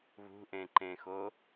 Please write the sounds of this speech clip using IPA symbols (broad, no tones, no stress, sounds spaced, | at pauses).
β ṳ ʔ ẽ ǃ ẽ x o